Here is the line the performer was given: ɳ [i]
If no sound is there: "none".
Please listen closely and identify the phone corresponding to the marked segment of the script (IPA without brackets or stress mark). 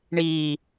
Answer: iː